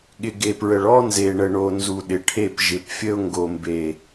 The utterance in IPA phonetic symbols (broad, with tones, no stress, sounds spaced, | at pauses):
ɠ ɪ˨ ɡ e˨ p ɹ ə˨ ɭ ɔ˦ n z e˨ ɳ ə˨ ɳ o˨ n z u˨ ɗ ɪ˨ ʈʰ e˦˨ p ʒ ɪ˨ p fʲ ə˦ ʊ̯ ŋ ɡ o˨ m b e˨